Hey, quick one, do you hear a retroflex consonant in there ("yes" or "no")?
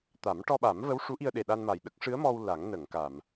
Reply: yes